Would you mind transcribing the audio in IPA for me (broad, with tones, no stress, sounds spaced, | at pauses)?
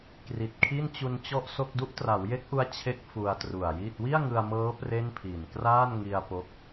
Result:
k r i˨˩ t̚ kʰ i˥˩ n t͡ɕ u˧ n t͡ɕ ɔ˥˩ ʔ s o˥˩ k̚ d u˦˥ ʔ t r a˩˦ w j e˦˥ k̚ ʔ u˦˥ a̯ t͡ɕʰ e˦˥ k̚ f u˧ a̯ t r u˨˩ a̯ j iː˥˩ t̚ w i˥˩ a̯ ŋ ɯ˧ a̯ m ɤː˦˥ p r e˥˩ n pʰ iː˨˩ n k r aː˥˩ n ŋ i˧ a̯ p o˥˩ k̚